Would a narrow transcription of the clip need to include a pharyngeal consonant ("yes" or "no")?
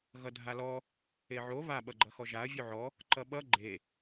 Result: yes